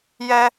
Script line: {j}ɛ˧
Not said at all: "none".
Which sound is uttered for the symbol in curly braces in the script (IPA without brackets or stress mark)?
j